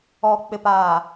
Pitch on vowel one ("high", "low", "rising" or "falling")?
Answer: low